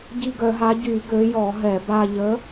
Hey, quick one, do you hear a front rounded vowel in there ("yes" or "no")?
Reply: yes